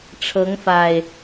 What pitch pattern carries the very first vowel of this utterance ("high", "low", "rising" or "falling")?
rising